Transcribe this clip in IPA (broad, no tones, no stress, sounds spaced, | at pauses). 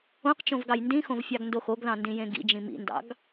õ q t͡ʃ õ v ɡ ɑ j n d ĩ x õ v fʲ ɑ ɡ n d o x o ɡ ð ɑ̃ n d ĩ j ẽ ɡ ḭ d͡ʒ ĩ m ḭ n d ɑ̰ ɡ